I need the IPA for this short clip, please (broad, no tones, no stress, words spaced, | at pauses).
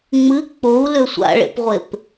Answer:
ŋ͡mɨ k͡pou̯lʏ sʷa̰ɭḛpʁʷep